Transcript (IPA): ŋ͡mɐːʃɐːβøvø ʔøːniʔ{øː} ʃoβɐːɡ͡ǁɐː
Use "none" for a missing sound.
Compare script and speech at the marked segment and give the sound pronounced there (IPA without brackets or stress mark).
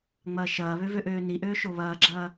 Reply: øː